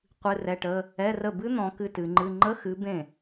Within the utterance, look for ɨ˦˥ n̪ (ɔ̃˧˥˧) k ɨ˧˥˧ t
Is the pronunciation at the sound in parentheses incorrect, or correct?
incorrect